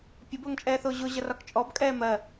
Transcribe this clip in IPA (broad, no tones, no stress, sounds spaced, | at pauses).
pʲ ə b ʊː ŋ t͡ʃʼ ɛː θ ʊː ʑ ʊ ʑ ʌ r ɒ k t͡ʃʼ ɔ b kʼ ɛː m ɜ